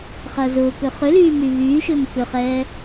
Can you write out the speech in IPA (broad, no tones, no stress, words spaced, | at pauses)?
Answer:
χɐːzʊːkø χʏlyː myβyːʃʏːm kʏχɛː